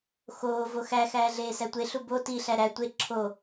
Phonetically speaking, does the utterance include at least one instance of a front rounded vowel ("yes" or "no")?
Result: no